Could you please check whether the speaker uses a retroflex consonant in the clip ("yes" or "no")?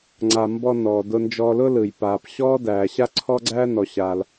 no